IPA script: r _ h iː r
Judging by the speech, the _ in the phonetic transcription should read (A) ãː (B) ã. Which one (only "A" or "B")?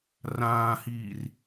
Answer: A